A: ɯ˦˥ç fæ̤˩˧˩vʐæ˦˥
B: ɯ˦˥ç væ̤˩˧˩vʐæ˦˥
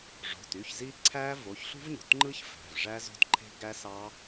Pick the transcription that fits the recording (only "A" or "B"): A